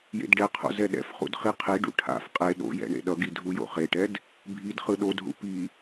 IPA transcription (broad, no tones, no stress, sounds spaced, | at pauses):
j ḛ d ɖ ɛ qʰ o̰ z ɛ ɗ ɛ̰ f χ ṵ d χ i qʰ i ɖ ṵ ʈʰ a̰ f qʼ e ɗ o̰ j ɛ̰ ɳ ḛ ɗ ʌ ɡ i dʱ u j o̰ χ e ʈ ɛ d | bʱ i d χ ɯ ɗ o d ɦ ṵ p i